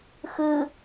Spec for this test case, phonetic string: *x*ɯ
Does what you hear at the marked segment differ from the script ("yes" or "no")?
no